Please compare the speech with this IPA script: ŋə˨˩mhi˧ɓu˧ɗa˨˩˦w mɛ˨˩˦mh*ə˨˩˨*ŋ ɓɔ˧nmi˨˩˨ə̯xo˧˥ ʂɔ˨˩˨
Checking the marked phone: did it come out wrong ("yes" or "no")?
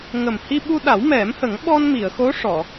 yes